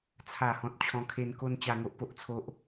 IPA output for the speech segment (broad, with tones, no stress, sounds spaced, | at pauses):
t͡sʰ a˥˧ h ɔ̃˦ t̚ t͡ɕʰ ɔ̃˦ kʰ e˧ n k o˧ n t͡ɕ a˧ ŋ o˦ ʔ p o˦ ʔ t͡sʰ o˦ ʔ